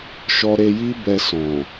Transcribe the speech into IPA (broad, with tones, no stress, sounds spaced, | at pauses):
ʃ ɔ˧ ɾ e˧ j i˦ b ɛ˧ s ɔ̃˨